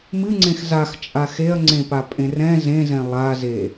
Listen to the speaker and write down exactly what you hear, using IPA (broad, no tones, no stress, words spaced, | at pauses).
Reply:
mɨŋ͡ǀẽx zaxt͡ʃʼa xeɐ̯ŋ͡ǀẽpa pʼẽrɛ̃ zẽzɛ̃ lˠaze